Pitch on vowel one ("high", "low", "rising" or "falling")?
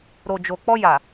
low